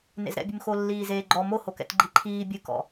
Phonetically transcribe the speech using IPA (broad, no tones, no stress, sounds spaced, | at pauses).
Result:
n ḛ z ɾ ɛ̰ bʲ ɨ m x o lː iː z eː ɡ͡ǃ ɔ m o h o k ɛ̰ t ɡ͡ǃ i ǃʰ iː bʲ ɨ k ɔ̰